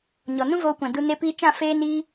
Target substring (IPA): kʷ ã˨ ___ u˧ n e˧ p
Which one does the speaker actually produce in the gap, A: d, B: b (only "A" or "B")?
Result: A